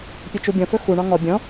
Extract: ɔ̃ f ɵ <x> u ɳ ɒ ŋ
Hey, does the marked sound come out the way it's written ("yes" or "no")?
yes